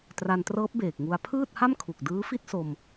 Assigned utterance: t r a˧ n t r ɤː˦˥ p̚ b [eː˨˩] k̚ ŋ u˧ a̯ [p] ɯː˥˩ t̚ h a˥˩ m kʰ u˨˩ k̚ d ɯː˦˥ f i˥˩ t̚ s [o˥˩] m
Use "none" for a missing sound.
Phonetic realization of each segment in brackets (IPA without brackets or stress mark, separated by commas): eː˨˩, pʰ, o˧